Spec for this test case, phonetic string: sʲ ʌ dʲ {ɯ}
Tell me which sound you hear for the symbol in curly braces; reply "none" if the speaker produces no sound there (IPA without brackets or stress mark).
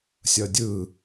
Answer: ɯ